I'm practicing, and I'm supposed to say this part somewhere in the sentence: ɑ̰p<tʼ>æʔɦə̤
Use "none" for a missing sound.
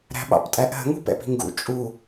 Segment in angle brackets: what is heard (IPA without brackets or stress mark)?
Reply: tʼ